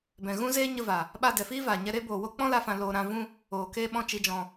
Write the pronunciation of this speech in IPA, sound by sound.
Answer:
b ɛ̃˨ ɣ ũ˦ z eː˦ ɲ ə˧ v a˨ | ɓ a˧ d ɛ˨ f iː˦ v aː˨ ɲ ɛ˧ ɾ e˦ b oː˨ w o˦ k͡p ɔ̃˦ l a˧ f ã˨ l oː˨ ɾ ã˧ v ũ˦ | oː˨ k eː˧ ɓ ɔ̃˧ t͡ʃ i˧ d͡ʒ ɔ̃˧

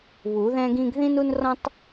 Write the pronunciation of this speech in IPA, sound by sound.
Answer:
β u˨˩˦ ð ɛ̃˦ ɡ ĩ˦ ɡ ð ĩ˦ n u˦ n r ɔ̃˦ tˤ

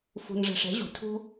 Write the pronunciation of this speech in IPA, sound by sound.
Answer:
f ṳ˧ n ʐ ɛ̤˧ ʂ ɛ̤˨˦ ʑ ṳ˨ tʰ ṳ˦

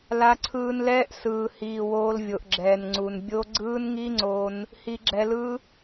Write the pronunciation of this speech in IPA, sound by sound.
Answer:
l a˧ ǀʰ ɯː˧ n l ɛː˦ ʔ s ɯː˨ h iː˨ w oː˧ l vʲ o˨ ʔ ɡ͡ǁ ɛː˨ n ŋ͡ǀ u˨ n bʲ o˦ ɡ͡ǀ ɯː˦ n ŋ i˦ ŋ͡ǀ o˧ n | h i˧ ɡ͡ǁ ɛ˧ l ɯ˦

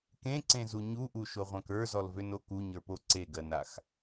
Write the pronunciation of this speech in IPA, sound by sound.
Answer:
k ẽ ǀ ẽ z u ɲ u ʔ u ʃ o ʁʷ ã k ə˞ z ɔ l v ø n o k u ɲ ə˞ p o ǀ e ɡ ɜ n a x

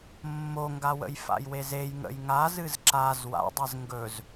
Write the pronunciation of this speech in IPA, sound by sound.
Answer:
mː o ŋ ɡ a w ə̰ j f a̰ j w e z e j ŋ ə̰ j ŋ a z ɨ z ǁ a z w a̰ dˤ e z ŋ ɡ ɵ z

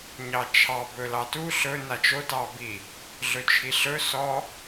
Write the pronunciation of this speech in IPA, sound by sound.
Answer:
ɲ ɑ t͡ʃʰ ɑ b ɵ l ɑ t u ɬ ɵ n a t͡ʃ o t ɑ b i | ɮ ɵ t͡ʃʰ i ɬ ɵ s ɔ

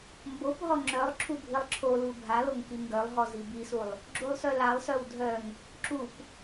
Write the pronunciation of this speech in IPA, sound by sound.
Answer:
m b o p ɦ ɔ ŋ͡ǁ œ lˠ ǁʰ u bʱ i lˠ ǁʰ o l u bʱ a l o ŋ k i ŋ ɡ œ lˠ ɦ ɔ z i b i s u lˠ | ɡ͡ǁ u lˠ s œ l a lˠ s œ w dʱ œ ŋ | ǁ u p

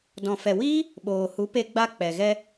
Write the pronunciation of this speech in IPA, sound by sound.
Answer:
d ɔ̃˨ f ɛ˨ w iː˦ | ɓ oː˨ h u˨˦ p e˧ ɡ͡b a˧ k͡p ɛ˨ ɣ ɛ˧

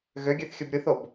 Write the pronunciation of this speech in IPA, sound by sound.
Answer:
ɣ ø ɡʲ ø θ xʲ ɯ b ɾʲ ɯ θ o b

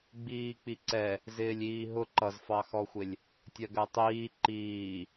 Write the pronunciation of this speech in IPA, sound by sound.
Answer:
ɡ͡b iː k͡p i ǀ ɛ | z ɪː lʲ iː ɦ ʊ ǃ ʌ z f ɑ x ɔ xʷ ɪ lʲ | tʲ ɜ ɡ ɜ tˤ iː ǃ iː

